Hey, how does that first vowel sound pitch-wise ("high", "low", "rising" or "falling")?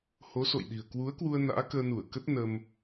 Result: rising